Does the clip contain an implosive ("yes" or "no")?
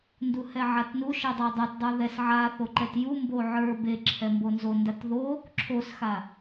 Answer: no